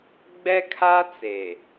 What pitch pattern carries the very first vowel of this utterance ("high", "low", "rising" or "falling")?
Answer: high